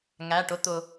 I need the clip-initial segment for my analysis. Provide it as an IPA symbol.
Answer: ŋ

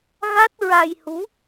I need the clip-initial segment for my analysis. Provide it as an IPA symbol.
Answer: ɣ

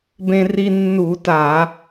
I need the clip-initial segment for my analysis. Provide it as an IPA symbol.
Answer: b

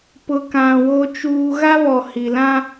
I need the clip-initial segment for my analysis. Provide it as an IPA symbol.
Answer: p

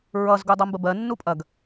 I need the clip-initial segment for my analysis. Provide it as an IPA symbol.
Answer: ɹ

